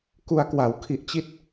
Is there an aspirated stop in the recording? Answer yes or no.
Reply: yes